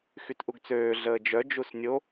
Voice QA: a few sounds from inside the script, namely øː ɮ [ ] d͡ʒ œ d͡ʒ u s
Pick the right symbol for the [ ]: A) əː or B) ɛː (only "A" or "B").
A